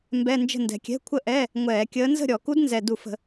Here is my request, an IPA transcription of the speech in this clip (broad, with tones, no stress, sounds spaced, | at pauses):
m b ɛ˧˥˧ n d͡ʒ ə̤˥˨ n d ɛ̤˨˩ kʲ ɛ̤˧˥˧ kʷʰ ə˥˨ ʔ ɛː˧˥˧ | ŋʷ ɛː˧˩˧ kʲ əː˧˥ n z ə̤˥˨ ɾʲ ɔ˧˩˧ k u˧˥ d n z ɛ˨˩ d u˧˩˧ f ə̤˧˩˧